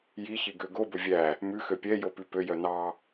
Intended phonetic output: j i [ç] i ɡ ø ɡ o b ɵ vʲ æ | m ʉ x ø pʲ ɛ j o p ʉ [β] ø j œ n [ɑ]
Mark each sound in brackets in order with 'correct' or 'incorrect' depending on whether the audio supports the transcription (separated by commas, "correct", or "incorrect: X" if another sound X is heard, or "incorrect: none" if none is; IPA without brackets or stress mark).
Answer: correct, incorrect: p, correct